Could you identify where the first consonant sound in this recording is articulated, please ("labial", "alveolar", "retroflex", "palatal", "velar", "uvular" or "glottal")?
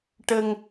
retroflex